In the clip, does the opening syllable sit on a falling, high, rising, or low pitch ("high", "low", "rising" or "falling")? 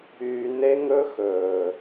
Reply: low